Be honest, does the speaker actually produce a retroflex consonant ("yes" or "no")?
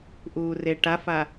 yes